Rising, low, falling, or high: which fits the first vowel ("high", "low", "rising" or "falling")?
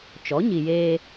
rising